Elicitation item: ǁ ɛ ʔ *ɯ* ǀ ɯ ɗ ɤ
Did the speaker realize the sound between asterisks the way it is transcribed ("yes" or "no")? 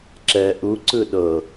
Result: no